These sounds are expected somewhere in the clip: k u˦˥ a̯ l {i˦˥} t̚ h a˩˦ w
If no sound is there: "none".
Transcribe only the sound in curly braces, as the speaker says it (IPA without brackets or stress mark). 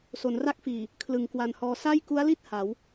i˥˩